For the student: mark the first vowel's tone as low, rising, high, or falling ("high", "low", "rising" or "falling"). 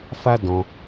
high